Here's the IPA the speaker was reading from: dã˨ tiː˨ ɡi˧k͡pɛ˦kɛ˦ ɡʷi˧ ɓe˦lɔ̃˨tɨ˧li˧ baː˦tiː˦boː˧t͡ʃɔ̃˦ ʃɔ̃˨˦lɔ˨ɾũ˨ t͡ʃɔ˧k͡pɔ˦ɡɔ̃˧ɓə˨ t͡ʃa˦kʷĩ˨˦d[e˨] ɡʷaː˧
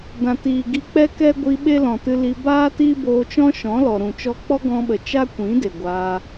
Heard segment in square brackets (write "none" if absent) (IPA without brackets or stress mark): e˨